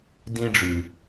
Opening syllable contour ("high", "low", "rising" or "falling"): high